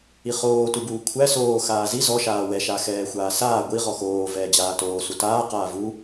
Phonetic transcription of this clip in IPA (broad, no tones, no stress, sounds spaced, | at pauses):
i χ oː t u b uː kʷʰ æ s oː x aː z i z ɔ ʃ aː w ɛ ʃ a x ɛː xʷ aː s aː ɡʷ i ʁ ɔ x oː v ɛː d͡ʑ aː t oː s u t aː q aː v u